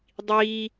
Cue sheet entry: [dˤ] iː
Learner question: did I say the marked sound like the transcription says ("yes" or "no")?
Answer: yes